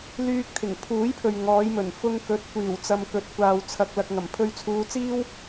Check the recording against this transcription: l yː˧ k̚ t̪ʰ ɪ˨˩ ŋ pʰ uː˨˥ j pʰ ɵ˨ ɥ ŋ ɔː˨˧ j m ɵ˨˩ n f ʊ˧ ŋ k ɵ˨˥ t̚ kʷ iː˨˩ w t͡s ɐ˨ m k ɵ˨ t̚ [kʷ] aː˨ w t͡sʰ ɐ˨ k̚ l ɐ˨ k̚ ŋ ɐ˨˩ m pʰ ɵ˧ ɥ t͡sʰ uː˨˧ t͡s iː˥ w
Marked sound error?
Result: no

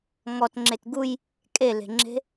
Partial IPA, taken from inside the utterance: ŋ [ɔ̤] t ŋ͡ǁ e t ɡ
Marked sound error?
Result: yes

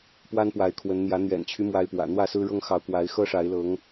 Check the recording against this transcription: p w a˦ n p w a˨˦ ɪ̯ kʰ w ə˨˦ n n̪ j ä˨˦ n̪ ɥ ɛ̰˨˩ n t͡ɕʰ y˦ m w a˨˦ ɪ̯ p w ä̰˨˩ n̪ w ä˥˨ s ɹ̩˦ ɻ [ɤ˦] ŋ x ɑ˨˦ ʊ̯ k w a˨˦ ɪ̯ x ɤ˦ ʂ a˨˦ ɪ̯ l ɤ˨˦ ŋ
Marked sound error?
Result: no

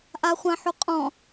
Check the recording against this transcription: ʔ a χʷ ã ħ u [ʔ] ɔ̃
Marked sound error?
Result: yes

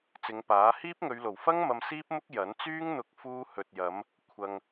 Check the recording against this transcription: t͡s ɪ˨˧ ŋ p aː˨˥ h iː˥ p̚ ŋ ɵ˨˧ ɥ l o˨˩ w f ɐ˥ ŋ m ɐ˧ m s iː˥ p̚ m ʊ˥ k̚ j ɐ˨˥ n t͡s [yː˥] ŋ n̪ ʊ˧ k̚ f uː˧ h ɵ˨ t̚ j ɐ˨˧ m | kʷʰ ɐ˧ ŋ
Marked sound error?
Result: no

